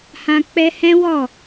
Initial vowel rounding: unrounded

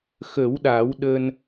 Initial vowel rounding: unrounded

